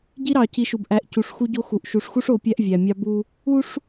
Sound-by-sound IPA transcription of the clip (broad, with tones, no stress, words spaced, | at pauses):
ɟi˦ɾɑ˨ci˨˦ʃu˨b ʔæ˨ʔ cu˨ʂxu˦ɟo˦xu˨ʔ ʃu˨ʂxu˦ʂ o˨˦ pʲæ˦ʔ vʲæ˨mʲɑ˦bu˦ | u˦ʂ